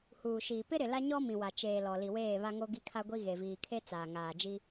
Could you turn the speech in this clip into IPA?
h uː˨ ʃ iː˨ p ɪ˦ ɾ ɪ˨ l a˦ ɲ ɔ˦ m ĩ˨ w a˨ t͡ʃ eː˨ l ɔ˨ l i˨ w eː˦˨ β a˦ ŋ o˦ ɡ i˦ kʰ a˦ ɡʷ i˦ ɣ e˨ v iː˨ kʰ e˦ t͡s aː˨ ŋ aː˨ d͡ʒ i˦

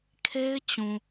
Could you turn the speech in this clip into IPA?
kʰ e˦ ɪ̯ t͡ɕ ũ˨

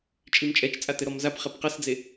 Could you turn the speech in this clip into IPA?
t͡ʃʼ i m t͡ʃʼ ɛ t͡ʃ t͡sʼ a t ɘ ɾ ɔ m z a p χ ɛ p q ɐ s d͡z e

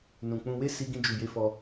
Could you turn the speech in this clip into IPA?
n ũ˨ k͡p ũ˧ w e˦ s i˧ ɡ ĩ˧ d͡ʒ u˨ j e˧ f ɔ˧

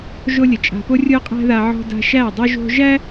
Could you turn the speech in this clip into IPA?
ʒ o˦ lʲ ə˨ t͡ʃʼ a̤˧ p o˦ rʲ o˦ qʼ æ̤˦ ð a˧ ʕ ɔ̤˧ d a̤˧ ʃ æ˦˨ dˤ o˧ ʒ o̤˧ ʒ æ˦

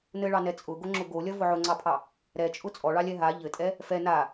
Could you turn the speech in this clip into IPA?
n ɘ ɭ ɑ n ɛ t͡sʼ ʊ ɡ o ŋ͡ǁ ʊ ɡ o lʲ ɐ v ʊ ʕ ʊ ŋ͡ǀ ɑ pʰ ɑ | ɾ ɛ t͡ʃʼ ʊ t͡sʼ ɔ ɭ ɑ lʲ ɛ ɦ a ʎ ɘ tʼ ɛ | f ɛ n a

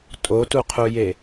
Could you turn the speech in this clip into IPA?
tʼ o t u qʰ u j e

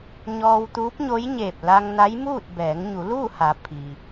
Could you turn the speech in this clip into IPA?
ɲ ɔː˧ w t̪ uː˧˥ p̚ ɲ o˧˥ j ɲ eː˧˩ p̚ l a˧ ŋ n a˧˥ j m uː˥˨ t̚ b ɛː˩˧ ŋ ɲ u˩˧ l uː˥˨ h a˩˧ pʰ i˩

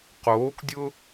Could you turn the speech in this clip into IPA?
q oː k dʲ ʊ

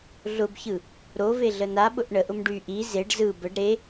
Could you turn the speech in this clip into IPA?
ɮ ʊ b ç ɯ | ɾ o v e ɮ ə n a ɓ ʊ ʔ ɳ ə ʔ ʊ m ɖ y ʔ i z e ɖ z ɯ b ə ɖ ɾ e

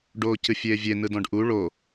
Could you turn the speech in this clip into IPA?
ɖ oː c ɨ fʲ eː vʲ e n ɯ d ɔ̃ ɖ ʔ u ɭ o

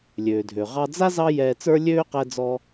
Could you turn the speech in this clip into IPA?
lʲ øː˩ dʱ ø˩ ʁ ɑ˧ d͡z a˥ z ɑ˥ j ɛː˧ t͡s ə˞˥ lʲ øː˥ q ɛ˧ d͡z ɔ˧

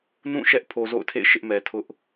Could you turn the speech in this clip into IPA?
n ũ˦˨ ʃ ɛ˦ ʔ pʰ o˨ z o̰˦˨ ʊ̯ tʰ ḛ˦˨ ɪ̯ ʃ ɪ˦ ʔ m ɛ˨ tʰ ʊ˦ ʔ

